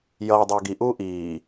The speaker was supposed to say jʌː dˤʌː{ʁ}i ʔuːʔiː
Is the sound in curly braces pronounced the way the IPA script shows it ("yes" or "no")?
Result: no